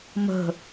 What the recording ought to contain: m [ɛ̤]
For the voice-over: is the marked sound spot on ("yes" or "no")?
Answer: no